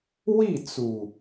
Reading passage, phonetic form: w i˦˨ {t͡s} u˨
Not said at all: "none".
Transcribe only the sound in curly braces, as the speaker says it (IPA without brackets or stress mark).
t͡s